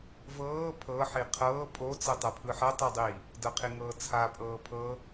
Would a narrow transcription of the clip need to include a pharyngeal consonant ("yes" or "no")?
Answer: yes